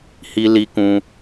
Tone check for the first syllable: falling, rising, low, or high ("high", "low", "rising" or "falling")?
low